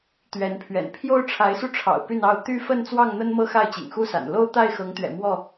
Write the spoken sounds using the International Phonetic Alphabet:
t̪ ɥ ɛ˨˦ n pʰ ɥ ɛ̰˨˩ n pʰ j o˦ ʊ̯ ʈ͡ʂʰ a˨˦ ɪ̯ s u˧ ʈ͡ʂʰ ɑ̰˨˩ ʊ̯ p y˥˨ n ɑ˥˨ ʊ̯ t̪ y˦ f ə˥˨ n t͡s w ɑ˥˨ ŋ n̪ ə˦ n m ɤ˦ x a˥˨ ɪ̯ t͡ɕ ḭ˨˩ ŋ x u˦ s a̰˨˩ n l o˦ ʊ̯ t̪ a˥˨ ɪ̯ x ɤ˨˦ ŋ t̪ ɥ ɛ̰˨˩ m w ɔ˥˨

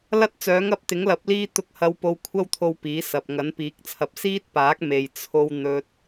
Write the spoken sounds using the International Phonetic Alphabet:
l ɐ˥ t̚ t͡s œː˨˥ ŋ ɐ˧ p̚ t̪ ɪ˨˥ ŋ l ɐ˨˥ p̚ l iː˥ t̪ ʊ˧ k̚ h ɐ˧ w p o˧ w kʷʰ ɐ˥ w t̪ʰ o˧ w p iː˨˥ s ɐ˨ p̚ ŋ ɐ˨˥ n p iː˨˥ k̚ t͡sʰ ɐ˧ p̚ s iː˥ t̚ p aː˨˥ k̚ m e˨ j t͡sʰ o˥ w n̪ ɵ˧ t̚

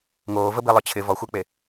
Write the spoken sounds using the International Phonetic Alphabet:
ŋ oː v ə b i lˠ œ t͡ɕʰ ɪ v ɔ xʷ ɪː k͡p e

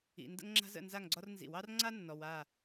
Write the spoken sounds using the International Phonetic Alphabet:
ḭ˨ n d ə̰˥ ŋ ŋ͡ǁ a̤˥ z ə̰˥˨ n z a˥˨ ŋ ɡ͡ǀ ɒ˥ r n z ḭ˨˩˦ w ɑ˥ r ŋ͡ǀ a˥ nː ɔ˨ w a˥˨

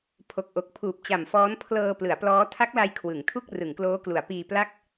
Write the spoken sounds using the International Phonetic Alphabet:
pʰ o˨˩ k̚ ʔ o˨˩ k̚ pʰ uː˨˩ p̚ t͡ɕ a˨˩ m f ɔː˦˥ n pʰ l ɤː˧ p l ɯ˩˦ a̯ p l ɔː˦˥ tʰ a˦˥ k̚ l a˧ j kʰ w ɯ˩˦ ŋ tʰ u˥˩ k̚ r ɯ˩˦ ŋ k l oː˦˥ k l u˩˦ a̯ p iː˧ p l a˥˩ k̚

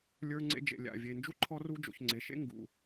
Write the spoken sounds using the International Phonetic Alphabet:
lʲ ə˞˥ ŋ͡ǀ ḛ˥ d͡ʒ ḛ˨ lʲ a̰˩ vʲ e˨ n d͡ʒ u˥ ǃʰ ɔ˦ r u˥ d͡ʒ o̰˨ ç ŋ͡ǀ e˩ ʃ ḛ˥ ŋ ɡ ṵ˩

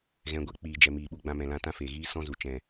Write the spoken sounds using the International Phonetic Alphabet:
ɣ ɛ̃˨ ɡʷ ɛ˦ k͡p iː˨ d͡ʒ ɛ˨ m iː˨ ɓ u˧ ɡ͡b ã˧ m ɛ̃˨ l ã˧ t ã˦ f eː˨ ɣ iː˦ s ɔ̃˦ z u˨ t͡ʃ ɛ̃˨

